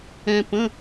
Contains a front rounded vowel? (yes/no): no